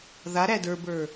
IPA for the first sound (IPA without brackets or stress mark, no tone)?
ð